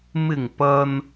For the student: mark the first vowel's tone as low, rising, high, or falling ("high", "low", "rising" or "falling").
low